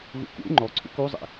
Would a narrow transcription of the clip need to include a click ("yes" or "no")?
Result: yes